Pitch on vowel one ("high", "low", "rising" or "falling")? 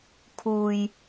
low